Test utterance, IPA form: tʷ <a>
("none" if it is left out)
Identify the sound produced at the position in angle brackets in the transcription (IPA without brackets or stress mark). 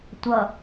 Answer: ʌ